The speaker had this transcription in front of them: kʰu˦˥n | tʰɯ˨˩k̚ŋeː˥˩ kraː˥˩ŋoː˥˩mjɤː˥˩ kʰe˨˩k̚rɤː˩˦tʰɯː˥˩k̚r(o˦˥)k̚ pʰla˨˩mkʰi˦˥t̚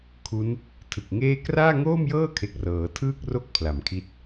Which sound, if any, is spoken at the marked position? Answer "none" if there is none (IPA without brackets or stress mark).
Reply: o˥˩